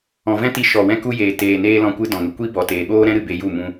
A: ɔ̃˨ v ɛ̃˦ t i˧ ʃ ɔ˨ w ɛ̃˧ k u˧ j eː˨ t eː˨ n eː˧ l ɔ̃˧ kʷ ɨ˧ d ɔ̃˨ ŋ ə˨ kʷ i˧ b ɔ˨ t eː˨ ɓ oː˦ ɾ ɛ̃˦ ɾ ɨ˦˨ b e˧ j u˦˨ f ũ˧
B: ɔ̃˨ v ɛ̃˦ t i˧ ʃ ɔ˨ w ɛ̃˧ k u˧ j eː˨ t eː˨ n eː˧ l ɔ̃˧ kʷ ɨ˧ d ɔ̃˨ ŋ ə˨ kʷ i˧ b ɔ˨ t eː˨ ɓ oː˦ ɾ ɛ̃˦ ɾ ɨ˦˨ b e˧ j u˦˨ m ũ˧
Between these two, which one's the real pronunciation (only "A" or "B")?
B